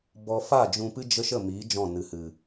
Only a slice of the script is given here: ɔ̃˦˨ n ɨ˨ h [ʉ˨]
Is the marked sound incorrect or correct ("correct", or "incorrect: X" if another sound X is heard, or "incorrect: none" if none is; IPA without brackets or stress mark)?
incorrect: ɨ˨